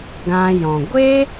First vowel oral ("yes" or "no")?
no